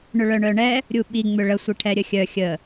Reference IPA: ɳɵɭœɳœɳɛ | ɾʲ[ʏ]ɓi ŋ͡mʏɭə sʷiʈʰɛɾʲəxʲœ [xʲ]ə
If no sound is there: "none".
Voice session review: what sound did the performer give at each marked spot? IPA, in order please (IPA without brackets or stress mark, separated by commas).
u, xʲ